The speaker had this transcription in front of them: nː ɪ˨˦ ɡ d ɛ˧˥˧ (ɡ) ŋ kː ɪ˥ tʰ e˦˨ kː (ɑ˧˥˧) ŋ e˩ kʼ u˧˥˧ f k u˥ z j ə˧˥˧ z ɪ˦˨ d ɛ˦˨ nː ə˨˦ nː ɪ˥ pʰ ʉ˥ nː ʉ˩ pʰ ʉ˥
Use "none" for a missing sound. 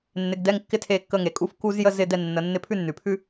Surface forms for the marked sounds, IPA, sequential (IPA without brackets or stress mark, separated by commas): none, ə˧˥˧